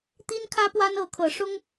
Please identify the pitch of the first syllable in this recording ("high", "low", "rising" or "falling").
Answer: high